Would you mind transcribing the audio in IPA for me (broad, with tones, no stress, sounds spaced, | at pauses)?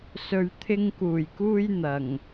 s ɵ˨ ɥ t̪ʰ ɪ˧ ŋ k uː˨˩ j k uː˧ j n̪ ɐ˨˩ ŋ